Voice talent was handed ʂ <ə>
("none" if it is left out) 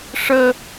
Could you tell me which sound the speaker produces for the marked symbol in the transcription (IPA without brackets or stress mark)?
ə